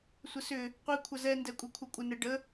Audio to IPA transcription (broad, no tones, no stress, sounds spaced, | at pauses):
sʷ ə s ʏ | qʷ i kʷʰ ɐ z ɛ n d ɛ kʷʼ e kʷʰ ɐ kʷʼ ə n ɛ ɖ ə